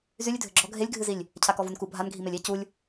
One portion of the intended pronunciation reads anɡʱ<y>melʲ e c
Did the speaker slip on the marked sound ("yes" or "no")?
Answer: yes